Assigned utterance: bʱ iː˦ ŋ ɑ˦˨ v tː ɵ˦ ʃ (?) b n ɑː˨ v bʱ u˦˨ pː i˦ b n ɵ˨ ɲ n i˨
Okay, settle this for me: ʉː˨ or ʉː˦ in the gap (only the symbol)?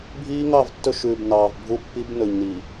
ʉː˨